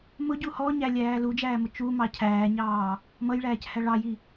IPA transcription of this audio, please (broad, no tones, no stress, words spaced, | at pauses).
mʊɟu hɔɲælʲæː lud͡ʒæːmʊ t͡ʃumɑ cʰæːɲɑː | mʌjɭæːchæ ɭɑji